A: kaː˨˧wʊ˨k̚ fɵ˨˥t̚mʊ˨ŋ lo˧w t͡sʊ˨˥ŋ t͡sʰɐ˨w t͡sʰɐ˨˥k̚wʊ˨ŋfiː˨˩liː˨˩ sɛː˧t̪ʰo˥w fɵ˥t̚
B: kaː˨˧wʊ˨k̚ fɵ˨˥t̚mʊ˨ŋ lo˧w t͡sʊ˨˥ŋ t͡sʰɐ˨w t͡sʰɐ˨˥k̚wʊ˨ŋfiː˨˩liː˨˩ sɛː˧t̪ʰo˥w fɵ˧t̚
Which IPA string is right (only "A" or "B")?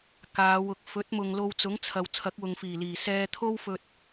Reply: B